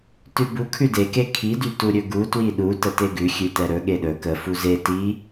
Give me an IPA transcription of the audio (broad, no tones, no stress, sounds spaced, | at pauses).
t ʉ b u kʰ ʉ d e k e kʰ i d y t u ɾʲ ɵ ɡ u t w i ɗ u t ə t e ɡ ʉ xʲ ʉ t ɛ ɾ ɵ ɠ e ɗ ɵ k ə f u z e t i